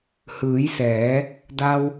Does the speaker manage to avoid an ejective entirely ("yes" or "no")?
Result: yes